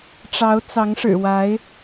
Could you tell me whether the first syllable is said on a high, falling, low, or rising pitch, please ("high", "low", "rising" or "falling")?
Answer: rising